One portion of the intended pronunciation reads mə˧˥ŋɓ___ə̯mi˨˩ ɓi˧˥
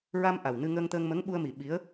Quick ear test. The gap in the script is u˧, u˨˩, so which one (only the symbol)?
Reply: u˧